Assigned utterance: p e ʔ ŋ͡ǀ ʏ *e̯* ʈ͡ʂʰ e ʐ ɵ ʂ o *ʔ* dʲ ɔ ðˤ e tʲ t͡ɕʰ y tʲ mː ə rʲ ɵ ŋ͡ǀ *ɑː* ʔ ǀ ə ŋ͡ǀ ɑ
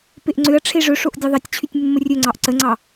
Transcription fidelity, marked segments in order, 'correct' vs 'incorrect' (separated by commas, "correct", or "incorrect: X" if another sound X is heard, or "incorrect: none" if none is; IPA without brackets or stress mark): incorrect: ɐ̯, correct, incorrect: ɑ